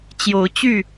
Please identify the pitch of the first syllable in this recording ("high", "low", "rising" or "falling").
rising